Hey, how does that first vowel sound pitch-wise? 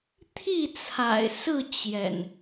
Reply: falling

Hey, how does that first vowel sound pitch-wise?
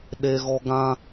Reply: high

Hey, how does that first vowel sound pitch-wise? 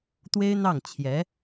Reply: high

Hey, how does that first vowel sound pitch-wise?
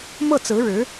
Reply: falling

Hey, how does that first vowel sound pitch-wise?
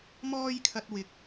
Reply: high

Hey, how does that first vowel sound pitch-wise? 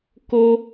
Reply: high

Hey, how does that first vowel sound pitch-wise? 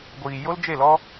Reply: low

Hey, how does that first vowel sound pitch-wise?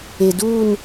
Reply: low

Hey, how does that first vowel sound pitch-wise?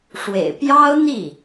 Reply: low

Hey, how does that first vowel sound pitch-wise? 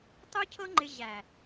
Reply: high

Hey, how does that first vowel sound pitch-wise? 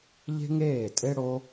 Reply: high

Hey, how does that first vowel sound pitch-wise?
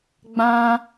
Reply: high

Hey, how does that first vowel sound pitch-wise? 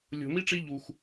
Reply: low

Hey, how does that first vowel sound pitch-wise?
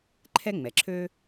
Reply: high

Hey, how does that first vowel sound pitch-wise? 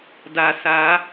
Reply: low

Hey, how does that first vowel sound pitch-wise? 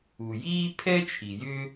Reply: low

